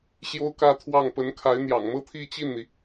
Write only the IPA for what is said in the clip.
ɕ j o˥ ʊ̯ k ä˥˧ t̪ʰ w ɑ˥˩ ŋ p ə˧˥ n kʰ a˧˥ ɪ̯ n̪ j ɑ̰˨˩ ŋ m ɤ˥ t̪ʰ i˥˧ t͡ɕ i˥˩ n n̪ i˩

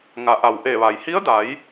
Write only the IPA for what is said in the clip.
ŋ a˩˧ ʔ a˩ w ʔ e˧˩ ʋ a˩ j h i˧˥ ə̯ d a˩˧ j

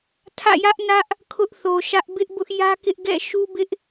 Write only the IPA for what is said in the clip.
tʰ ä̰˦˨ j ä˦ ʔ n ä˦ ʔ | kʰ ʊ˦ ʔ θ o˨ ʃ ä˦ ʔ b ɪ˦ ʔ b ʊ˦ ʔ j ä˦ k ɪ˦ ʔ ɡ ɛ̰˦˨ ʃ u˦ b ɪ˦ ʔ

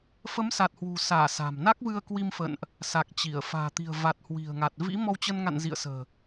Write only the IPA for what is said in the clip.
f ə˨˦ m s a˨˩ t̚ h w ṳ˨˩ s aː˧˩ s a̤˨˩ m n a˦˥ k̚ v ɨ˧ ə̯ k w i˧ m f ə̰˧˨ n ʔ | s a˨˩ k̚ t͡ɕ i˧˩ ə̯ f a̤ː˨˩ t̪ i̤˨˩ ə̯ v a˨˩ t̚ h w i̤˨˩ ə̯ ŋ a˨˩ t̚ v ḭ˧˥ m ɔ˧ w t͡ɕ ə˧ n ŋ a̰˧˨ n z ḭ˧˨ ə̯ s ə̤ː˨˩

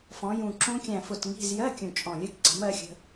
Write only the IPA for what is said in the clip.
f ɔ̃˩˧ j ũ˨˩ ǁ ũ˦˥ kʲ æ̃˨˩ f ʊ˨˩ t ŋ i̤˧˥˧ z j ɜ˧˥˧ kʲ ũ˨˩ t͡ʃʼ ɔ̃˨˩ lʲ ɜ˦˥ k ǀ i̤˩˥ m ɜ˦˥ xʲ ə̤˧˥˧

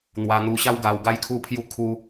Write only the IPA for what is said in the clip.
n̪ w a˧ n̪ u˧ ɕ a˦ w ɡ a˧ w ɡ a˦ j kʰ u˥˧ pʰ j u˦ kʰ u˦

